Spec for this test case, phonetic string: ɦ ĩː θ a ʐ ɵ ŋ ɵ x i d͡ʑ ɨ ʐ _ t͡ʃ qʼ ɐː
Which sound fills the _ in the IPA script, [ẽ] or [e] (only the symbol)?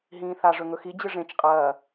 ẽ